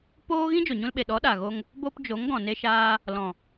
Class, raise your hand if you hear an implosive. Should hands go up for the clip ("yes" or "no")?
yes